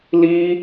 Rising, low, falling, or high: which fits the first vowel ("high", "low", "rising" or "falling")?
high